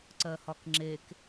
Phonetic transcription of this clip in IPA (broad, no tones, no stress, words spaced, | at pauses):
ǀɜhɒkŋ͡ǁek